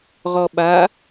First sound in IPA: ʁ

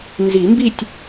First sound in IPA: n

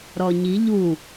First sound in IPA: ɾ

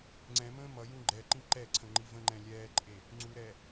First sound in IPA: ŋ͡ǀ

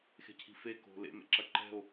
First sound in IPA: x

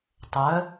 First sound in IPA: tˤ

